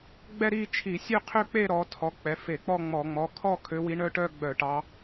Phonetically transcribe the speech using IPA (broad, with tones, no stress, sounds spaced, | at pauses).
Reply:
ɡ͡b ɛ˥˧ ɾ i˥˧ t͡ʃʰ i˧˩˧ sʲ ø˥˧ qʰ ø˥˧ k͡p e˥˧ ɾ ɔ˨˦ tʰ ɔ˩˧˩ k͡p ɛ˩˧˩ f e˧˩˧ k͡p ɔ˥˧ ŋ͡m ɔ˧˩˧ ŋ͡m ɔ˩˧˩ kʰ ɔ˥˧ kʰ ø˨˦ w i˨˦ ɳ œ˦˥ ʈ œ˥˧ ɡ͡b œ˧˩˧ ʈ ɑ˨˦